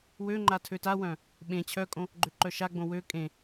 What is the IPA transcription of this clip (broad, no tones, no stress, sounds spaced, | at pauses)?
w ø ŋ͡ǃ a tʰ ø t a w œ̃ | ɓ ẽ t͡ɕʰ œ kʼ õ | ɡ͡ǃ ø ǃ œ ʃ a ɡ͡b õ w ø kʼ ẽ